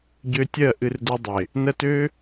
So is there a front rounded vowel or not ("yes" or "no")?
yes